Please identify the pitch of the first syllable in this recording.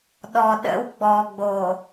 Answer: low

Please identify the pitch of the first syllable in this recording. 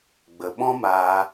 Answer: low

